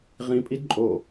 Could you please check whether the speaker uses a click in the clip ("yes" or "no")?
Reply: yes